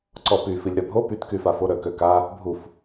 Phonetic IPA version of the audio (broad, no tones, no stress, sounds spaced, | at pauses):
ǀ ɔ p y f i lʲ ɾ œ bʱ o p y t k y f a f o ɾ œ k ø k a | bʱ u f